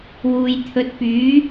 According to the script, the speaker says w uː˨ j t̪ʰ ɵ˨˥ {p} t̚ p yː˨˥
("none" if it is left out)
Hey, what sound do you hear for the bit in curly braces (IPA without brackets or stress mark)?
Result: none